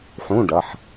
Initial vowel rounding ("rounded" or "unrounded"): rounded